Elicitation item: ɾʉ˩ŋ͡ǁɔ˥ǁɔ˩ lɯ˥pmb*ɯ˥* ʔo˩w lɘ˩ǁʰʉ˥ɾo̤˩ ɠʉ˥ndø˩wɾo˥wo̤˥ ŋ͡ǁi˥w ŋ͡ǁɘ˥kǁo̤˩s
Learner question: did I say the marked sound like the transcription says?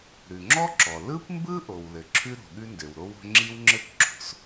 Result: yes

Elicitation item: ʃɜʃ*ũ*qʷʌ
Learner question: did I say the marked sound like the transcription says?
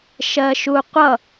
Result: no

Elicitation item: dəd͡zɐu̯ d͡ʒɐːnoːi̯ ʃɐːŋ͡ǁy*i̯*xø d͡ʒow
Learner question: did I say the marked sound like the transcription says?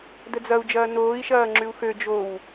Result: no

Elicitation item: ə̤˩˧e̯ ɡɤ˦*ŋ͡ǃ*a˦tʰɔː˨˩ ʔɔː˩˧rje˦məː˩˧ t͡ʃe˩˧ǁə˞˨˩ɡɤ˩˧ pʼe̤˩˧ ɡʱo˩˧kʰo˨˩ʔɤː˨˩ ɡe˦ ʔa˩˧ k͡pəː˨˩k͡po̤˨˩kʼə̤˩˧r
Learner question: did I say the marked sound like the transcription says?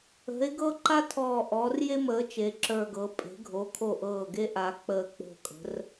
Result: no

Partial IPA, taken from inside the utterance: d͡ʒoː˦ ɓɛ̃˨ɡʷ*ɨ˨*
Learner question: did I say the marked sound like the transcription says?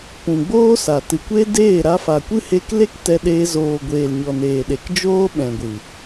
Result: yes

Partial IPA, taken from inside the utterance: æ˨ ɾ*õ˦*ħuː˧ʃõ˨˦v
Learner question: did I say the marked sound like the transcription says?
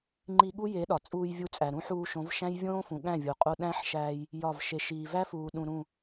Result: no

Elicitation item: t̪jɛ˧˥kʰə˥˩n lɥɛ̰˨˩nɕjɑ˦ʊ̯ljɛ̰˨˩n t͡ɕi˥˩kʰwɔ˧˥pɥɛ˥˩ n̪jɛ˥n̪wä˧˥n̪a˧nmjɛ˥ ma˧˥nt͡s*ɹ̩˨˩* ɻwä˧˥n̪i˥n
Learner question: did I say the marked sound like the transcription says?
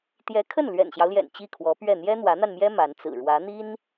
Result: yes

